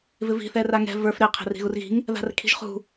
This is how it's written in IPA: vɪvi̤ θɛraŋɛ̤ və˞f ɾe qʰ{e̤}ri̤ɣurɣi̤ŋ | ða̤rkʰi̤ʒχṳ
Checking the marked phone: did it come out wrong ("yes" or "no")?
no